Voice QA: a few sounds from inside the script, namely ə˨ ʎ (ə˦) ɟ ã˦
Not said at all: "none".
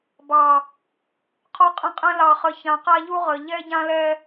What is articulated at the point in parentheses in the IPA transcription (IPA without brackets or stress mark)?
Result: ɛ˦